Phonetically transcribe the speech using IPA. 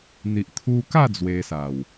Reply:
n̪ i˨ ʔ t̪ʰ u˧ k a˥˧ d͡z w e˧ s a˨˩ w

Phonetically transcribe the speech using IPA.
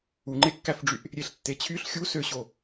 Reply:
u ŋ͡ǃ e kː æ f ɖ͡ʐ y ʔ | ɾʲ e ɬ tː e t͡ɕʰ y ɬ xʲ u s ø ɕ o

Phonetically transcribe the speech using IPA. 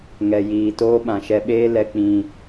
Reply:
ŋ ɛ˨ j iː˨ t oː˦ ɓ ã˨ ʃ ɛ˧ ɓ eː˦ l ɛ˨ k͡p ĩ˨

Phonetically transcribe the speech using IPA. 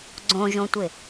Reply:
ɡ͡ǀ õ ʒ õ tʷ ɪ

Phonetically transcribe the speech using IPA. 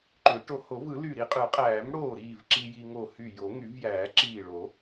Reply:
ǃ ø˨˩˦ ʈ o˧ h o˨˩˦ v ɯ˨˩˦ l y˧˩ ɾ i˧ qʼ ɯ˨˩˦ qʼ æː˨˩˦ m ɽ oː˧˩ ɾ iː˧˩ v ǁ i˧ j i˧ ŋ o˧˩ h y˧˩ j o˨˩˦ ŋ y˨˩˦ v j æː˨˩˦ ǁ iː˧˩ ɭ o˨˩˦

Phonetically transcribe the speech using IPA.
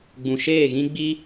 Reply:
ɡ͡b ũ˨ ʃ eː˦˨ ɣ ĩ˦ ɡ͡b i˦

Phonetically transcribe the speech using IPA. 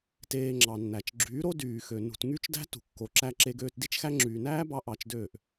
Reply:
t eː˧ ŋ͡ǁ ɑ˨ nː æ˨ t͡ʃ ɡ͡ǁ yː˨˦ ɾ o˦ d yː˨ x ø˨ n ṳ˨ t ŋ y˦ t͡ʃ d æ̤˦ t ṳ˨ kː o˨ ǁ æ˧ ǁ e˧ ɡ øː˧ t d i˦ t͡ʃ x æ˦ ŋ͡ǁ yː˨ n æː˦ b ɑ˧ ʔ ɑ˧ t͡ʃ d øː˦˨ ʔ

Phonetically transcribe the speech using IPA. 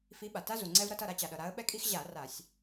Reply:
f i˨˦ ɓ a˩ t a˦ z u˩ ŋ͡ǀ ɛ˦ v ɾ ʌ˦ t ʌ˥˨ ɾ a˦ t͡ɕ a˩ ɗ ʌ˩ ɾ a˨˦ ə̯ ɓ ɛ˦ kʼ i˦ x ʑ a˧˩˧ r a˧˩˧ sʲ

